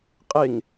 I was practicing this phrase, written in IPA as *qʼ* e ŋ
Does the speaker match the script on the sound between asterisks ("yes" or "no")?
yes